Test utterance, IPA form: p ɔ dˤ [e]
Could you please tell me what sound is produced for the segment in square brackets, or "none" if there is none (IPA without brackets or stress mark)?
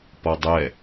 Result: ɛ